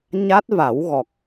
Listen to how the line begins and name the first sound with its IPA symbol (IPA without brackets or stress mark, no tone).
ɲ